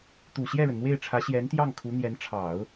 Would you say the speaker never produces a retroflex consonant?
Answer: no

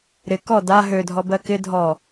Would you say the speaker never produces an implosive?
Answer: yes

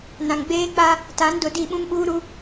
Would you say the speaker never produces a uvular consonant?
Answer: yes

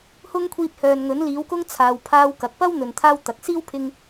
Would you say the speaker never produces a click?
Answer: yes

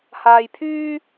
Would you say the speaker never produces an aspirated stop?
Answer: no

